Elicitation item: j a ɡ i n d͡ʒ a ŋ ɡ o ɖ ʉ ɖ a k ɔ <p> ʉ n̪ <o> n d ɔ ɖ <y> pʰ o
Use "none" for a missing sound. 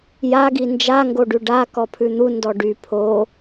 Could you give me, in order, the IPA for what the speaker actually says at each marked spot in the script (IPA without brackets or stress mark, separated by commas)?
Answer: pʰ, u, y